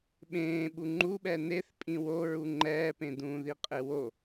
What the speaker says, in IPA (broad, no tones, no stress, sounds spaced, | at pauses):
ɓ ẽː ɓ u ŋ͡ǃ u ɓ ɛ n e θ pʼ ĩ w o ɹ u ŋ͡ǃ ɛː p ẽ d ũː ð i qʼ e w o